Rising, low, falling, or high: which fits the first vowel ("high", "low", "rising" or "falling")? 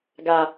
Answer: low